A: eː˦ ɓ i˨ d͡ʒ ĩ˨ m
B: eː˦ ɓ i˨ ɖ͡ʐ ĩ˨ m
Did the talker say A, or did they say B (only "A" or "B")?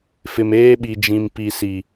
A